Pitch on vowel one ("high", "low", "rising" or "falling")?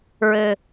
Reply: low